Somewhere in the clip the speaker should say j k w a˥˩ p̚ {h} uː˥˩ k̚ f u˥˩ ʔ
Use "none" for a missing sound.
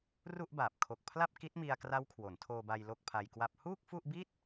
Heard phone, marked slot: h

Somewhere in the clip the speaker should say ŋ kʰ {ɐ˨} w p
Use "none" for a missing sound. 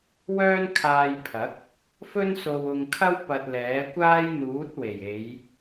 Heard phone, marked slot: ɐ˥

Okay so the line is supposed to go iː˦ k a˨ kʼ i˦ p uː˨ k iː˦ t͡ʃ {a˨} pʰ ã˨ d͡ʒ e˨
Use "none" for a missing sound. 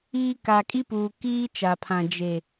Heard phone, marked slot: a˨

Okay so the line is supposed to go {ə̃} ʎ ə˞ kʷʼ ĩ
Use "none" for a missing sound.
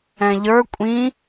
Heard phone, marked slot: ɛ̃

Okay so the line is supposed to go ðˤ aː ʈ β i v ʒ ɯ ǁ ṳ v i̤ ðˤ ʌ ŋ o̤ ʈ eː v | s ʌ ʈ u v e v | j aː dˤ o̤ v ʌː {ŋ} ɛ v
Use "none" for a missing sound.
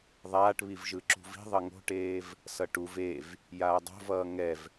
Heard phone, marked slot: ŋ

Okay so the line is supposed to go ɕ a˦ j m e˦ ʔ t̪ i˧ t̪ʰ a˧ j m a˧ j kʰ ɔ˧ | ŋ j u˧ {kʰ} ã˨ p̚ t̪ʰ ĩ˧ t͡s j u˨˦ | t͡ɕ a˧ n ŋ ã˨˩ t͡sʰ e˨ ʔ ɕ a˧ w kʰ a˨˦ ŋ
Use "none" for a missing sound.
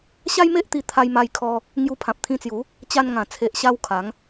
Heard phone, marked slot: pʰ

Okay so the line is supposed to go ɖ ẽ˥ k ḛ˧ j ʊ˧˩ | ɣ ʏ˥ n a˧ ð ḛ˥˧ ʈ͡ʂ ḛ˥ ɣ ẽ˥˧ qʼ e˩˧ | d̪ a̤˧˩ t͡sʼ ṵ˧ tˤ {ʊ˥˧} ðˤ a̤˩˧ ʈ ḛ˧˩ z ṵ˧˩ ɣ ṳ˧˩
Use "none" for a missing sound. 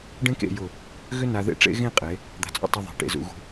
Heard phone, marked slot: ʊ˧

